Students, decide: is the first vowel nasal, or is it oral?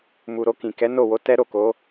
oral